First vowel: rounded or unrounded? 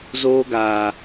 rounded